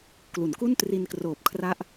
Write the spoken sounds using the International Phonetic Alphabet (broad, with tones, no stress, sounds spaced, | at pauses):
k l u˩˦ n k u˥˩ n t r i˧ n k r oː˨˩ p̚ kʰ r a˦˥ ʔ